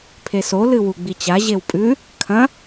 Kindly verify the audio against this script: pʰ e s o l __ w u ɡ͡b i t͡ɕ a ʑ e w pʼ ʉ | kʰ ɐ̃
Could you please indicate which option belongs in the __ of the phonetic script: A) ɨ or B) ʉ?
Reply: A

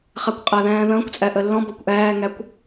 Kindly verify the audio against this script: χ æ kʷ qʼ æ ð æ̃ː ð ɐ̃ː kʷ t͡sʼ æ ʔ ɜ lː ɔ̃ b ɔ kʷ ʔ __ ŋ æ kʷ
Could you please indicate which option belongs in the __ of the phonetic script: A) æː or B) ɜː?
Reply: A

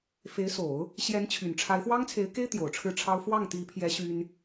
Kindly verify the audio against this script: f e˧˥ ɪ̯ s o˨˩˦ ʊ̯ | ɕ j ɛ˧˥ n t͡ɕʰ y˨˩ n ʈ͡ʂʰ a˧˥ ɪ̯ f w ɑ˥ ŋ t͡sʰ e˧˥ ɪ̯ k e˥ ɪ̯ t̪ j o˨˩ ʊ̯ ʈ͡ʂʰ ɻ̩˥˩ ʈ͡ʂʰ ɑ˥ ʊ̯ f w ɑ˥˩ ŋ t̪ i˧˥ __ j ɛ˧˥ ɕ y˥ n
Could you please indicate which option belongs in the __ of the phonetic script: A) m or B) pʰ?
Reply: B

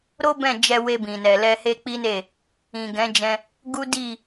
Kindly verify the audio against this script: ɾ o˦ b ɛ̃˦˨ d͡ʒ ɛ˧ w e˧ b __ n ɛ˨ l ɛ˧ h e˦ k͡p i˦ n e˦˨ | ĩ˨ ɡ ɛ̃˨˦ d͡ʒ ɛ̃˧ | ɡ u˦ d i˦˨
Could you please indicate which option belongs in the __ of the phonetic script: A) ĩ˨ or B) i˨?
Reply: A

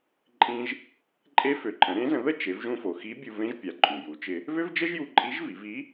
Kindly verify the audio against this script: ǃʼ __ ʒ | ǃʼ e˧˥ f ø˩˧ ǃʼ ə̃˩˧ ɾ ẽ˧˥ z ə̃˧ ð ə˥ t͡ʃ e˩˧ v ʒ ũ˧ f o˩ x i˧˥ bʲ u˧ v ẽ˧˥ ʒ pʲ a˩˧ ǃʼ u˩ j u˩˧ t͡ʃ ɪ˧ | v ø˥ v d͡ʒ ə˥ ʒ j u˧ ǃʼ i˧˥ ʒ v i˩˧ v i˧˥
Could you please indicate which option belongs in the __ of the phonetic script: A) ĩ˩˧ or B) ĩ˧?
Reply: B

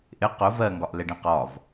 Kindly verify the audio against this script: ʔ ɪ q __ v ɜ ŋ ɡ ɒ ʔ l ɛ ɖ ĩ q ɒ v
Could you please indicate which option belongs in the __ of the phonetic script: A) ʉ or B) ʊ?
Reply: B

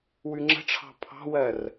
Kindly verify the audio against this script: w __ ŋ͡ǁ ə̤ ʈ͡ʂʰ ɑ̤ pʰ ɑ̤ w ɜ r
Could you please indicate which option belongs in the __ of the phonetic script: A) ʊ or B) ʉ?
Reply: B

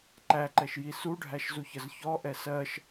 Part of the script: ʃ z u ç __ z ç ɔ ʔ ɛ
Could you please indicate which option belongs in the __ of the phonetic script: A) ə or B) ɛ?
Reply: A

